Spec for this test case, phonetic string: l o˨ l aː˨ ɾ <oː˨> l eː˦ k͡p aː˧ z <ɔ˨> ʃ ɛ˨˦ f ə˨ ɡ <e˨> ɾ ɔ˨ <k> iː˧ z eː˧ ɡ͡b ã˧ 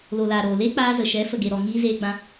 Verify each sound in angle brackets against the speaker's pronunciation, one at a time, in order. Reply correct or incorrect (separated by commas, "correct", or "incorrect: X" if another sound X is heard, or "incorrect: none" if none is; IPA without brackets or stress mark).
correct, incorrect: ə˨, correct, incorrect: ŋ